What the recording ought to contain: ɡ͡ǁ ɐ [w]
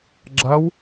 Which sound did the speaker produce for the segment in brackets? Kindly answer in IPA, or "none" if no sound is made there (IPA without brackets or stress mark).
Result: w